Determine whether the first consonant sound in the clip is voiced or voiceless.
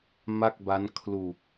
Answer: voiced